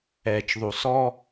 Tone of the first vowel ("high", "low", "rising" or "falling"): low